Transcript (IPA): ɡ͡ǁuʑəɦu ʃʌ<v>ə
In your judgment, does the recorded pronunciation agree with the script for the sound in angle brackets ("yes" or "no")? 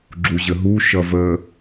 yes